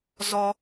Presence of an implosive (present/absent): absent